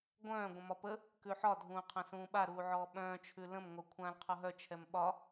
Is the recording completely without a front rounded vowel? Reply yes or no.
no